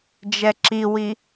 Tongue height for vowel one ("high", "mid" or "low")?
mid